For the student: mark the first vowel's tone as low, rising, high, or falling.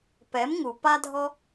rising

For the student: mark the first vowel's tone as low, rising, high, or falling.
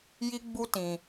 high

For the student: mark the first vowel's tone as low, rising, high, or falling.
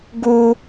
high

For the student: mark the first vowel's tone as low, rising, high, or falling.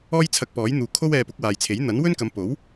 high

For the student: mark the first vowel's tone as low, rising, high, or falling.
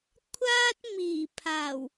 high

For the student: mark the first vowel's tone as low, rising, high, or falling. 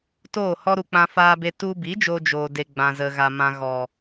falling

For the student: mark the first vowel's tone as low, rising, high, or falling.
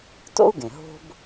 high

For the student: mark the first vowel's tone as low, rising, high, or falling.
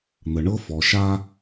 low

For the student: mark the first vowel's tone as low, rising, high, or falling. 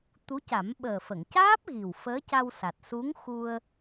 rising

